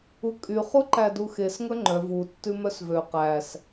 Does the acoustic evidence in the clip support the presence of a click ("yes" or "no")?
yes